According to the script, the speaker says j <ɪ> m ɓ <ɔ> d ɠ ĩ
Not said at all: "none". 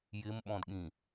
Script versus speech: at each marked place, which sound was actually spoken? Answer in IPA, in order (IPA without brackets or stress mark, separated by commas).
ɪ, ɔ̃